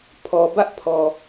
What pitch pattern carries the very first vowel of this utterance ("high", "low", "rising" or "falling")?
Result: low